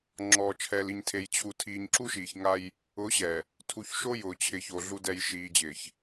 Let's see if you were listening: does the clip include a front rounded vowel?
no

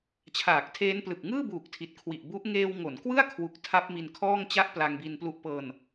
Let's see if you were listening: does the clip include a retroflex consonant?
no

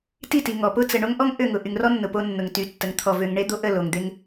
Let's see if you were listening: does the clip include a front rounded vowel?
yes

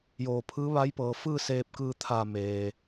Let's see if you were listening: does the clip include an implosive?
no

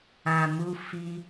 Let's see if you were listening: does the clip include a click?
no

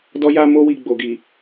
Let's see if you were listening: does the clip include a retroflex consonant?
no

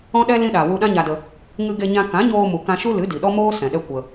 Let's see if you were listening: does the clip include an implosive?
yes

